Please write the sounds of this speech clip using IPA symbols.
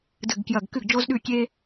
dɨ˧˩ɡkjɐ˧˩ɡkɨ˥˩ɡ d͡ʒo˥zɗʉ˥˩kʲe˥

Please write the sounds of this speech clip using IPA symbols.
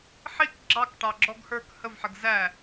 ħik ɡ͡ǁɑkʈɑɡ͡ǁɔɡ hə˞k həvħəɡ zæ

